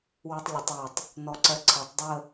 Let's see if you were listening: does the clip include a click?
yes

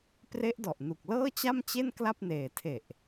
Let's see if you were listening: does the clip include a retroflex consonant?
no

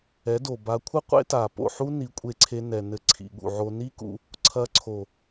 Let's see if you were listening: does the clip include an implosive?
yes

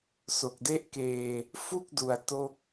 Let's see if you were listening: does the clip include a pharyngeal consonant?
no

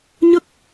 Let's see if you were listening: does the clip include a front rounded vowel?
no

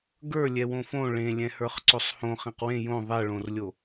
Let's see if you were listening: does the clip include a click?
yes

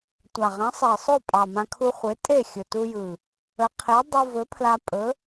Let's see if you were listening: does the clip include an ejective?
yes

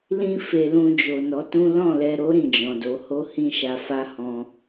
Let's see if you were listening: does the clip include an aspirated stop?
no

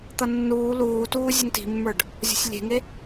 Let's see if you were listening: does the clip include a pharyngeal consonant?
no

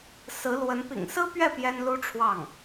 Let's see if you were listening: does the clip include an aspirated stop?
yes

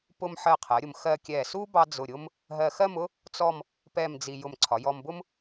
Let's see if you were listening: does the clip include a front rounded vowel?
no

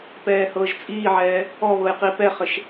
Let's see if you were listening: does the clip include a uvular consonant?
yes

